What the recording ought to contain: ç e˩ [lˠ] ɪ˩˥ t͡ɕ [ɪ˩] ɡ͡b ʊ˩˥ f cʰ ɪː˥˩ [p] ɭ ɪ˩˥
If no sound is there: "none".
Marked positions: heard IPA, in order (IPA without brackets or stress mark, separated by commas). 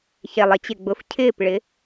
lˠ, ɪ˩, p